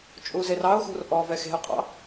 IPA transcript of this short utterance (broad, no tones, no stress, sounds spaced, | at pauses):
t͡ʃʼ u z e r ɑ ʊ̯ x ṳ r ʔ ɔ v ɛ x e̤ ʊ̯ qʼ ɑ̰